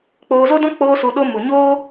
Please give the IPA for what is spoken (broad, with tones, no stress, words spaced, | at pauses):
k͡poː˧zo˦dɔ̃˦ k͡poː˦su˧ɗo˦ mu˨ɲoː˦